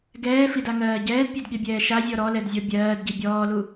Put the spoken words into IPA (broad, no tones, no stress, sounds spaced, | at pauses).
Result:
ɡ ɛː f i d a ŋ ɜː ɟ ɛː d pʲ ɛ d ɠ i bʲ ɛː ʃ a zʲ ɔ ɾ ɔ l ɛ d zʲ ɔ bʲ ɜː d ɟ i bʲ ɔː l u